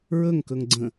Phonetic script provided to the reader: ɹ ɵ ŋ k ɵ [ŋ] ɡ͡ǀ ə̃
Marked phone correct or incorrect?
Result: correct